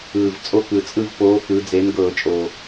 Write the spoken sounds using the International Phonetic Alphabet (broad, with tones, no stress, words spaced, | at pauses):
ɯː˨˩vt͡sʼo˦˨k ɯ˨˩ t͡sʼɯ˦˨vpoː˨˥kɯ˩˧ d͡ze˨˥nɡɤː˧˩˧t͡ʃʼoː˨˩